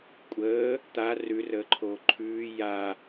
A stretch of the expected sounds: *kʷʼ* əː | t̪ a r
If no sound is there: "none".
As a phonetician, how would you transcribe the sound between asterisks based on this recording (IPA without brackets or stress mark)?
kʷʼ